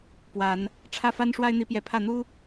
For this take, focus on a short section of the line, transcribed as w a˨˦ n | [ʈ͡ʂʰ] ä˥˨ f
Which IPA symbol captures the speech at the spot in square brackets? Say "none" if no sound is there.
ʈ͡ʂʰ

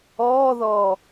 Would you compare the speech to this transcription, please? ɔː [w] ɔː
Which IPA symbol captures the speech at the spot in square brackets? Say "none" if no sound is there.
ð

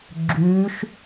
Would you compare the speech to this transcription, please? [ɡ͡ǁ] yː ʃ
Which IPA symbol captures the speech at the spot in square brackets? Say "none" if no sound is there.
ɡ͡ǁ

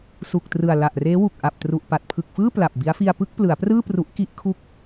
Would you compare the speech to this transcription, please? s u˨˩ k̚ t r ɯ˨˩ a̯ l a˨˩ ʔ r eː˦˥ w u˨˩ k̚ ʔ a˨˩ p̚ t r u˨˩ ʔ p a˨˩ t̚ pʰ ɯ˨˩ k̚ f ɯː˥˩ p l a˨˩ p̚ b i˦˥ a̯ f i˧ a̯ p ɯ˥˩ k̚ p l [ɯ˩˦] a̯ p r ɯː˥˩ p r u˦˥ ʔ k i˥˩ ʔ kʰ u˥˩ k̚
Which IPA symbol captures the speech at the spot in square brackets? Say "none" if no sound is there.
ɯ˩˦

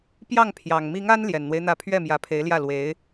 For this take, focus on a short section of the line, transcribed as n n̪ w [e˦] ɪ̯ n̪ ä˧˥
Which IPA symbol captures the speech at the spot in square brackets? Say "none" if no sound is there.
e˦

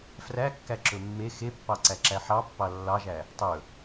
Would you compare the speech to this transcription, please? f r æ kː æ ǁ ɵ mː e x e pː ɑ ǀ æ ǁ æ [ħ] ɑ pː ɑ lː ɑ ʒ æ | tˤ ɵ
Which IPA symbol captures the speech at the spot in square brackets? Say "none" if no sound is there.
ħ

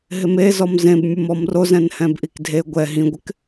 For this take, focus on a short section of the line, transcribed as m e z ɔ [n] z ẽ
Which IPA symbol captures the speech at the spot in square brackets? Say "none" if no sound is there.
m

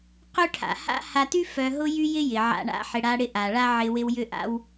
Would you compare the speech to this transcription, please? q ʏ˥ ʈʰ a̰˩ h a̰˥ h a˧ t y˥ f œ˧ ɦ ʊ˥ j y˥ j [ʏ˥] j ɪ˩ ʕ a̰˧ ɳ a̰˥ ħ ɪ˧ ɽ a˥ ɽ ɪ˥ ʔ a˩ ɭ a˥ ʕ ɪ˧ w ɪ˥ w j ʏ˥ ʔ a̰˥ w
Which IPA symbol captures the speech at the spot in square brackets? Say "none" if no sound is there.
ɪ˥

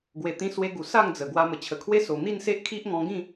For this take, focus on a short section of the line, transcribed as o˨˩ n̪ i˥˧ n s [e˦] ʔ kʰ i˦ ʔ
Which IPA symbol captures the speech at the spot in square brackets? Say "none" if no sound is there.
e˦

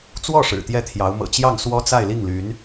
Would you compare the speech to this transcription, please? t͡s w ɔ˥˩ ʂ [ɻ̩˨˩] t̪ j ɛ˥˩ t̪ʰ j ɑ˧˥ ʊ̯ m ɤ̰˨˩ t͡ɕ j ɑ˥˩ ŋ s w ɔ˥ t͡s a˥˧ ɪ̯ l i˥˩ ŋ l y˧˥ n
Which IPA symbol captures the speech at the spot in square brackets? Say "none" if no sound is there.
ɻ̩˨˩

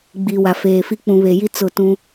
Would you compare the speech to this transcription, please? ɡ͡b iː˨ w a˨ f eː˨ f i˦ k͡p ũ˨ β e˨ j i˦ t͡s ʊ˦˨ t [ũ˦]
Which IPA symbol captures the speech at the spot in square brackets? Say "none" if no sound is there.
ũ˦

